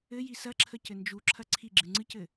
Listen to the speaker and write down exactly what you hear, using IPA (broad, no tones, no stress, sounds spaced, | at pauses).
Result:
ɘ j i s ɐ ǁʰ ə c ɘ n d͡ʒ u ǁʰ ɐ ǀʰ i ɡ͡ǁ ɨ ŋ͡ǀ ɨ c ɘ